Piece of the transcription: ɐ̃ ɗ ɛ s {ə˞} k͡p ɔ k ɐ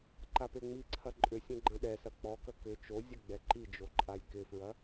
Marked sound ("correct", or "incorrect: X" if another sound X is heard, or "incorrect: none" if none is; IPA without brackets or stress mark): incorrect: ɐ